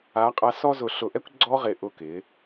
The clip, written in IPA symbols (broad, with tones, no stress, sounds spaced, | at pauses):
a˨˦ qʼ a˧ s ɔ˧ z ʊ˨ ɬ ʊ˨ ʔ ɛ˧ kʷ ɡ͡ǀ ɔ˦ ʁ ɪ˨ ʔ ʊ˦˨ k ɪ˨˦